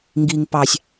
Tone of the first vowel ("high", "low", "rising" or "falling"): low